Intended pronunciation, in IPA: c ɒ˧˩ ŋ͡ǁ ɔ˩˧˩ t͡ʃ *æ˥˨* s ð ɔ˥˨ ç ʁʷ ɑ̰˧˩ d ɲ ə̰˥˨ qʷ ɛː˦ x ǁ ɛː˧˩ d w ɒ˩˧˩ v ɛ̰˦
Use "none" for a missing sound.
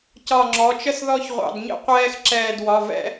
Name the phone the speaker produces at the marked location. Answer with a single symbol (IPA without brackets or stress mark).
ə˥˨